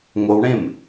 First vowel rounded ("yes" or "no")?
yes